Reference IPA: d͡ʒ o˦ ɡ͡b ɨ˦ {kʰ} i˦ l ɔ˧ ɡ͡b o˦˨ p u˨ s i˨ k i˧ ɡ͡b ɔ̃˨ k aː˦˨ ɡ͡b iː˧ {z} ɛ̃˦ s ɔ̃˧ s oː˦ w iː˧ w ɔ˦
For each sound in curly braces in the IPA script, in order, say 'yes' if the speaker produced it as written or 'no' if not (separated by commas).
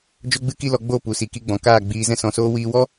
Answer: no, yes